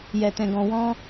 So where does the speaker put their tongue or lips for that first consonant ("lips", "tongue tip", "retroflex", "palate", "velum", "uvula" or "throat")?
palate